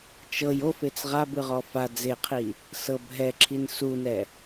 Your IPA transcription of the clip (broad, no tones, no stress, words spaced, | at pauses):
t͡ʃɤj ofet͡s ʁabɯʁɔ fa d͡zeqʰi | sɤb ɦɛǁʰin sunɛ